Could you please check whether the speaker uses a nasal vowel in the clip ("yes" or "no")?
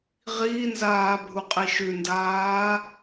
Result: no